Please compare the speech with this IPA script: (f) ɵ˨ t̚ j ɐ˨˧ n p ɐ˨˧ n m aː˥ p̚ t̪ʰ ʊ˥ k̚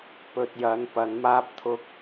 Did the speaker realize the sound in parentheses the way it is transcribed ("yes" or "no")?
no